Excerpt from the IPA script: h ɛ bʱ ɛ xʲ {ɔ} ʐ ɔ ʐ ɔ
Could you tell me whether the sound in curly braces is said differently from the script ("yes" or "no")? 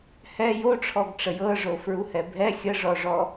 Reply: yes